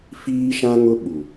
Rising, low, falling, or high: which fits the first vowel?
high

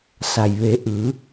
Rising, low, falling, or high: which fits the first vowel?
low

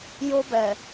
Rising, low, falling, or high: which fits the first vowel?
high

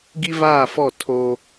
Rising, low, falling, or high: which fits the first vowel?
high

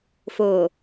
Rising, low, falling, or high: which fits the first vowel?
low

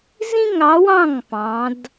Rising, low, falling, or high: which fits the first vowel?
high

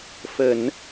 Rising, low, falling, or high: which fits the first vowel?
low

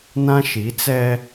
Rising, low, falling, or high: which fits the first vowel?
high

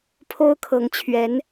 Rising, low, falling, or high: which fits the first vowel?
high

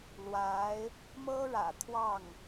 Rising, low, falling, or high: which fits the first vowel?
rising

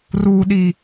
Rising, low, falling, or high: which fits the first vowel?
low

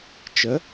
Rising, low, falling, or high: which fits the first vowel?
rising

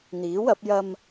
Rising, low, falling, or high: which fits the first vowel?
rising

